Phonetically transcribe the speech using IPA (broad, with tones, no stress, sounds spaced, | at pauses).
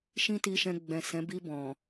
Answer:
ʃ ĩ˦ t i˧ ʃ ɛ̃˧ ɡ͡b ɛ̃˨ s ɛ̃˨˦ b i˧ b ɔ̃˨